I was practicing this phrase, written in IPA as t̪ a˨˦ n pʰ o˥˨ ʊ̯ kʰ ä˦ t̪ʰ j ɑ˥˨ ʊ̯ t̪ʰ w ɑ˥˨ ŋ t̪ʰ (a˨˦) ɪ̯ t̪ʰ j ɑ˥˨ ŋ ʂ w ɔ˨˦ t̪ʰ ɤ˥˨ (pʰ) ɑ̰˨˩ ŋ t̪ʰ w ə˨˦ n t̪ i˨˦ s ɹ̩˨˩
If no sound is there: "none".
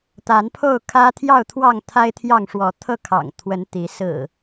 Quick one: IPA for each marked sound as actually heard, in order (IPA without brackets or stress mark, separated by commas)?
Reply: a˦, kʰ